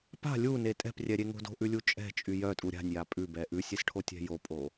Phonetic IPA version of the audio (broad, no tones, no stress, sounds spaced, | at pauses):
p a̤ lʲ u n e tʼ ɛ̤ p rʲ ɛ ɾʲ e ŋ o̤ d o̤ ʔ ʉ lʲ u t͡ʃʼ ɛ̤ t͡ʃʼ y j œ tʼ u ɾʲ a̤ nʲ j a pʼ ʉ b ɛ ʔ ʉ sʲ e s ʈʰ o tʲ ɛ̤ j o pʼ o